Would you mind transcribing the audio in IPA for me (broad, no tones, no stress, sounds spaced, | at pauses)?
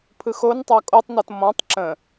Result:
pʰ ɯ x o n tˤ ɑ kʼ o tˤ n ɔ t m ɔ̃ tˤ ǁ ə̃